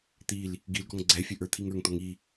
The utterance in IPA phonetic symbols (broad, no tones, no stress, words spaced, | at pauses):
t̪il | ɡilɡɔŋ ɡ͡ǀɛfʲɘ ʔə˞t̪ʰiŋə˞ŋt̪ɔŋ i